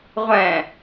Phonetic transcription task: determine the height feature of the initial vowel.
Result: mid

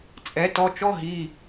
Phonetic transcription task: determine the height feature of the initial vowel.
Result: mid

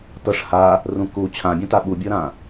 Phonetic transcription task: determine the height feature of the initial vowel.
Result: mid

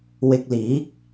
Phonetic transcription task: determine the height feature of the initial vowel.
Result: high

